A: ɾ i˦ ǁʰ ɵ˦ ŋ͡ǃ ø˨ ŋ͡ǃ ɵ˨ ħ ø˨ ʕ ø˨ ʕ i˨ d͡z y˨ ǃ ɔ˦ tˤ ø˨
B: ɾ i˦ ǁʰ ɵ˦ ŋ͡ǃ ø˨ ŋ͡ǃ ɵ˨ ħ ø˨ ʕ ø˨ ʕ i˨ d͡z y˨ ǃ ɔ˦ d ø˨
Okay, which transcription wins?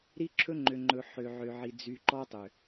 A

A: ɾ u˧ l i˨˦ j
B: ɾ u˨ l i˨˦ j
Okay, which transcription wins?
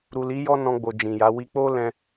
B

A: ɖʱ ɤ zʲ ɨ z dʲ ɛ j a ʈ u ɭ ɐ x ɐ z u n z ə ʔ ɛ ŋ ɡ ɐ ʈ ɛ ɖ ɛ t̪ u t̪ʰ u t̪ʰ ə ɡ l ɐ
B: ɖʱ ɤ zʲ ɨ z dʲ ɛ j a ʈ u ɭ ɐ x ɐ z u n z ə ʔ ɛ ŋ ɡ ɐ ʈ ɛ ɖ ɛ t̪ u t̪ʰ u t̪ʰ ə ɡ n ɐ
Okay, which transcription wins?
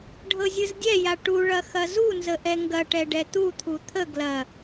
A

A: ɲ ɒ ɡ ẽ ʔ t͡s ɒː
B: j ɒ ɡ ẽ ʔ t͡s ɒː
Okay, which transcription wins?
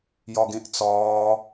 B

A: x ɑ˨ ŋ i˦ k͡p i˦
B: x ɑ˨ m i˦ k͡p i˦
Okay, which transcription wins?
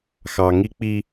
A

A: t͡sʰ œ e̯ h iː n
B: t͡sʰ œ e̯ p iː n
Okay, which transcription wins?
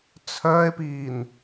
B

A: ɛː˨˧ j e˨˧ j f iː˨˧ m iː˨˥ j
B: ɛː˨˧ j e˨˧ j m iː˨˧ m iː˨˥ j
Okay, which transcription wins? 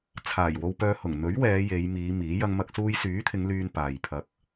B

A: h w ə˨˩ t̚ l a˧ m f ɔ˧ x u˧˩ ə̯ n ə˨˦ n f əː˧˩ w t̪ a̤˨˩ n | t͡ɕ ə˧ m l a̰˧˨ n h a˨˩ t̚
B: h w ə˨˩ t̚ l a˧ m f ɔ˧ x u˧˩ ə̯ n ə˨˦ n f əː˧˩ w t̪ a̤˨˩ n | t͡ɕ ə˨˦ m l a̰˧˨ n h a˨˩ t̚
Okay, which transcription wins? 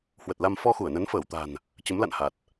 B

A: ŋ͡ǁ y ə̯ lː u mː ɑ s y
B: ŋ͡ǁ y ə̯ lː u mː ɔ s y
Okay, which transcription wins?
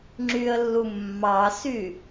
A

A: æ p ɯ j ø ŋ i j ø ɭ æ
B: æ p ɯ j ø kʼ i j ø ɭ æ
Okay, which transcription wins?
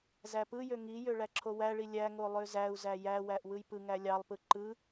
A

